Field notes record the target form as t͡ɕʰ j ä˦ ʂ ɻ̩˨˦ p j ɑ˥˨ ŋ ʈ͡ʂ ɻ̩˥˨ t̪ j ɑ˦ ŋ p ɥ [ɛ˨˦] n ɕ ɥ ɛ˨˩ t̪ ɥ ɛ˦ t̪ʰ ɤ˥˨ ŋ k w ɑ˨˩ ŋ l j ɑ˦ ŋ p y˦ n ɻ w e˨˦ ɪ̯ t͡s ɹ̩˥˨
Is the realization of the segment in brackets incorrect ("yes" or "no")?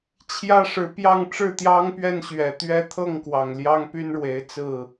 yes